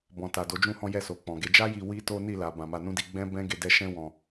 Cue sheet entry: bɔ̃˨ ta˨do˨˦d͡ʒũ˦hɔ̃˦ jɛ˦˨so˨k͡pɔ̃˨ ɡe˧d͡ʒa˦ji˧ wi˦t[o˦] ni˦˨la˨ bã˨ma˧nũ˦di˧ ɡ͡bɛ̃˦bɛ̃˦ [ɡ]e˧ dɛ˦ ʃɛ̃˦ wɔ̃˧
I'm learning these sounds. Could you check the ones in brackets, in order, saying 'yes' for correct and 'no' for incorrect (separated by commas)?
yes, yes